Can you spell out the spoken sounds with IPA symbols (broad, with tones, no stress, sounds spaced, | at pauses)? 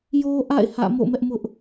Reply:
j o˦ ʔ a̰˦˨ ɪ̯ h ä̰˦˨ m o̰˦˨ m ɛ˦ ʔ m ʊ˦ ʔ